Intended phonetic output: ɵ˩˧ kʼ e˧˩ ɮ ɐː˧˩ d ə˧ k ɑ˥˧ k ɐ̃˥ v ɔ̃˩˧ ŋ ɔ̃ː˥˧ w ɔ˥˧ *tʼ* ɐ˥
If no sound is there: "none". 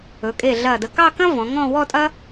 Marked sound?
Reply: tʼ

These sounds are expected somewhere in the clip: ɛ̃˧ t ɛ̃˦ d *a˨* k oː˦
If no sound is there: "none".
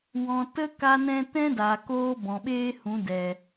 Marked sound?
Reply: a˨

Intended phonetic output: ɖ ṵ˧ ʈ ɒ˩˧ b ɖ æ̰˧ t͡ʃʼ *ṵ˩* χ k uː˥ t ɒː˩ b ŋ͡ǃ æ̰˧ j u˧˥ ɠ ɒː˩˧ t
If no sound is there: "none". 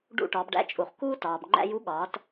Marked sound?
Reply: u˩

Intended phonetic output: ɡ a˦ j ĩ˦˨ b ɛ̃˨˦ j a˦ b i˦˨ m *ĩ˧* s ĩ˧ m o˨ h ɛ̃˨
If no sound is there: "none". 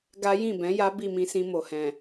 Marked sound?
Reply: ĩ˧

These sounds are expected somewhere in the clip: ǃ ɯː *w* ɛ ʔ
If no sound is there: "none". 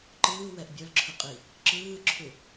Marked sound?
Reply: w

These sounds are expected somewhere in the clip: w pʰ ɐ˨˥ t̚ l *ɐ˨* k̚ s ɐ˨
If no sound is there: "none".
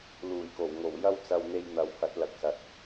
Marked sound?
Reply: ɐ˨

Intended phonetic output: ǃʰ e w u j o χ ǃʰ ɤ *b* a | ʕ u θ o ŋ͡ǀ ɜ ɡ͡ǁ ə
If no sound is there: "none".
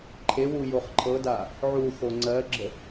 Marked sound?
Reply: d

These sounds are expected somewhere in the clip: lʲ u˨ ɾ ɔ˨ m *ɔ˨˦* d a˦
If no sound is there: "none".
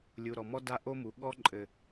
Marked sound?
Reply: ɔ˦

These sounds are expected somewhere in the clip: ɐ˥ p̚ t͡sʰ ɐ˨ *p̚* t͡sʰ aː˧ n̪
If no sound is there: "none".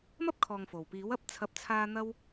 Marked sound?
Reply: p̚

